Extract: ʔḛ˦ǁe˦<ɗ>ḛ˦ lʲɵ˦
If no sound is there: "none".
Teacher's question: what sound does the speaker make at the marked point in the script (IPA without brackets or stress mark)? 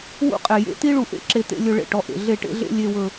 t̪